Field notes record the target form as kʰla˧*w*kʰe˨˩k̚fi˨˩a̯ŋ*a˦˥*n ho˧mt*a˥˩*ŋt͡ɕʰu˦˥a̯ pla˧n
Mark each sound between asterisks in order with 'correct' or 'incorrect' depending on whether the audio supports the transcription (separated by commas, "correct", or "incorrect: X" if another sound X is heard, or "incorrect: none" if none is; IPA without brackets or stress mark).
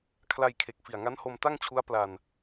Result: incorrect: j, correct, correct